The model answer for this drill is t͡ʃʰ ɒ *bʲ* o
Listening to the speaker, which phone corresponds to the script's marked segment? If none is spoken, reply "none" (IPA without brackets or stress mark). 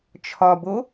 b